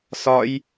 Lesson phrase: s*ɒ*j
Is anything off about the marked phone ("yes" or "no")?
no